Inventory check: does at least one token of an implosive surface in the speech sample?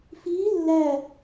no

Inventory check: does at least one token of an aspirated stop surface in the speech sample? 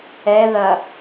no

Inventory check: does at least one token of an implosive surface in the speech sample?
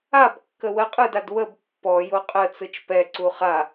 no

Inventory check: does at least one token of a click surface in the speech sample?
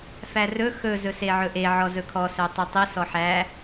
no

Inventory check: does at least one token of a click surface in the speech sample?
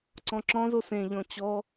yes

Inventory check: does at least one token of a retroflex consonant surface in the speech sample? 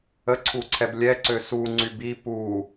no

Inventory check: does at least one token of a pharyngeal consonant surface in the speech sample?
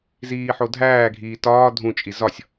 yes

